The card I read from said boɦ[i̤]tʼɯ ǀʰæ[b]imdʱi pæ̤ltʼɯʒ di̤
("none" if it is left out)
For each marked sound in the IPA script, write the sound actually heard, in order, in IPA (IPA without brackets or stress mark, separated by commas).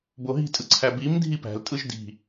i̤, b